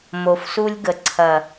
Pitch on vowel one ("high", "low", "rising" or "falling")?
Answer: low